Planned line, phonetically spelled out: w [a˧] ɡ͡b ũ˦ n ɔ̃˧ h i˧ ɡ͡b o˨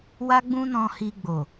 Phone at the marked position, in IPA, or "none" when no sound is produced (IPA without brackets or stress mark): a˦